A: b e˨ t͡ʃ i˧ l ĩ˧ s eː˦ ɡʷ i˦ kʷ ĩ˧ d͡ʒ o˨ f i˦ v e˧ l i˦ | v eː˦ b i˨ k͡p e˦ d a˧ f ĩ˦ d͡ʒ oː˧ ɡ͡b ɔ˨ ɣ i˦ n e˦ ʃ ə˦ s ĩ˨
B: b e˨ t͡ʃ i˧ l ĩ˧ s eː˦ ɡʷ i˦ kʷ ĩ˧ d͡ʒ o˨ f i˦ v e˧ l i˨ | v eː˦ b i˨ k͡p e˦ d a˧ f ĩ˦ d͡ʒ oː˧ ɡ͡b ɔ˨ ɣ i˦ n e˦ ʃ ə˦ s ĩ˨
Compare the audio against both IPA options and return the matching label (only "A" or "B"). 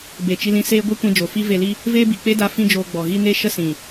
A